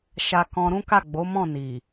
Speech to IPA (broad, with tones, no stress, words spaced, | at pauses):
ʃa˦kɔ̃˦ ɾũ˦ka˦˨ɡ͡bo˨˦ mɔ̃˦˨ ni˨